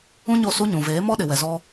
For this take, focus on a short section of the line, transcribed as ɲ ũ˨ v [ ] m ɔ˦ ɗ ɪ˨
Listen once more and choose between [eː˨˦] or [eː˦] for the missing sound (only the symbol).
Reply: eː˨˦